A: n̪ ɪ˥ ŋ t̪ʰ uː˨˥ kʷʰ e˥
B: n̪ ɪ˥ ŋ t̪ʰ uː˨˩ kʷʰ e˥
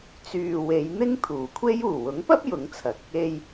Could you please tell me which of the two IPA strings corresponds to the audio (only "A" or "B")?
B